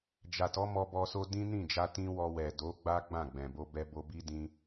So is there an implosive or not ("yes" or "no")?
no